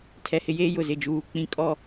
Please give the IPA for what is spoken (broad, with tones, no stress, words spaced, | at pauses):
tʰɛ˨hɪ˦jeː˦ jʊ˨zɪ˦˨d͡ʒuː˦ k͡pĩ˦kʼɔ˦˨